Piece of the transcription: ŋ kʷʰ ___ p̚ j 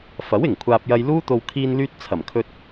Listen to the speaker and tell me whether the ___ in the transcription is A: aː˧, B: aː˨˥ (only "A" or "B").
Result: A